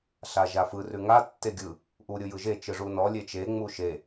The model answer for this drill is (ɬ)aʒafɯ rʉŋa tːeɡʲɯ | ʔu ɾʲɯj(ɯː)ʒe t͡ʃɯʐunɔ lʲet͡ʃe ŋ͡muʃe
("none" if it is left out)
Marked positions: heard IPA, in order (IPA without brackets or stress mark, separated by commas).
ɬ, ɯ